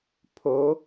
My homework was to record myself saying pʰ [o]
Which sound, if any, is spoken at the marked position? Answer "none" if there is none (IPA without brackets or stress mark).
o